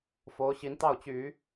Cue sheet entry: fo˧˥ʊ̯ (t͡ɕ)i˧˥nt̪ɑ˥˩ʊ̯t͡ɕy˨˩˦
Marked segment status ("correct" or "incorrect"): incorrect